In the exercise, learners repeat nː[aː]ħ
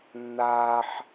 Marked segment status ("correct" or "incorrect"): correct